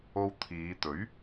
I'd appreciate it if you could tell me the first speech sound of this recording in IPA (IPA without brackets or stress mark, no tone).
o